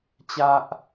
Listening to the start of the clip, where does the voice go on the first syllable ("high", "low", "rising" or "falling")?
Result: high